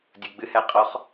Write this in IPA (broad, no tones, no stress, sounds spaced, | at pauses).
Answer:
dʲ u ɡ͡b ɨ h ɛ qʼ ɔ χ